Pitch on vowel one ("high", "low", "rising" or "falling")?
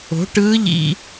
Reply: rising